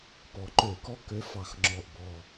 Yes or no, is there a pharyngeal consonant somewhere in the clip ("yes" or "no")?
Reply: no